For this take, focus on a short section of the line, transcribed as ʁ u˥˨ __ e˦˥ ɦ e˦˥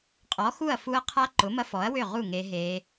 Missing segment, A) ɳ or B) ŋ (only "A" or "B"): B